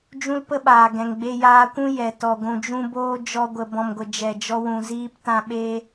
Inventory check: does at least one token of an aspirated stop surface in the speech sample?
no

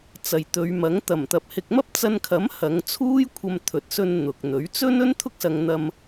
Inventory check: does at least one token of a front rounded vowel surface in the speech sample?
no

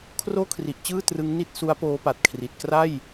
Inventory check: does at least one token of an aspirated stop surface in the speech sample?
yes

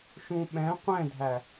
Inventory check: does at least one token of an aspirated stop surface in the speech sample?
no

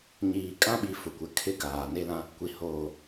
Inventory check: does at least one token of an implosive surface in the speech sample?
yes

